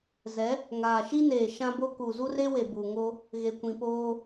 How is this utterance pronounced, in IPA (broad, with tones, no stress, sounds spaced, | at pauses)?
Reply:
z ɛ˨˦ | ŋ aː˨ ʃ i˦ n eː˨ ʃ ã˦ b o˦ k u˨ z u˦ r e˦ w e˨ b u˨ ŋ o˦ | ɣ e˨ kʷ ĩ˨ p oː˦